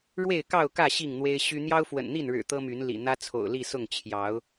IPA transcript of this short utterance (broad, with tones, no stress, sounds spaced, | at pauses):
ɻ w e˥˨ ɪ̯ k ɑ˥˨ ʊ̯ k ä˥˨ ɕ i˥˨ ŋ n̪ w e˦ ɪ̯ ɕ y˦ n̪ j ɑ˦ ʊ̯ f w ə̰˨˩ n n̪ i˥˨ n ɻ ɻ̩˨˩ t̪ ɤ˦ m y˨˦ n l ḭ˨˩ n̪ ä˦ t͡sʰ o̰˨˩ ʊ̯ l i˥˨ s ʊ˥˨ ŋ t͡ɕʰ j ɑ˨˦ ʊ̯